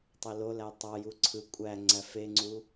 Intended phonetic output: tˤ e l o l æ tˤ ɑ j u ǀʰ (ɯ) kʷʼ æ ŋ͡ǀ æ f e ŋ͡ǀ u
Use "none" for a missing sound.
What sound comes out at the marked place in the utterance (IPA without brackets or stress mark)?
ɯ